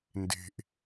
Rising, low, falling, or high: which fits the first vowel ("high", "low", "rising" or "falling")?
low